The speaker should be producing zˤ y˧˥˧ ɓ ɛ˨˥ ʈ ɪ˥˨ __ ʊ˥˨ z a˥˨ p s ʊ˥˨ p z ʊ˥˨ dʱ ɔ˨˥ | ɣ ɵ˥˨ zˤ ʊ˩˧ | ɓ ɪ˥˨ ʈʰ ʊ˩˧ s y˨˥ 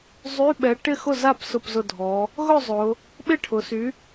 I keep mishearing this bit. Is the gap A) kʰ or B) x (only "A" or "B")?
B